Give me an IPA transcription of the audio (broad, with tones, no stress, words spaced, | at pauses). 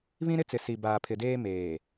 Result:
βĩ˦ɾɪ˦t͡sɪ˨ si˨ baː˨pʰɪ˨deː˦ meː˨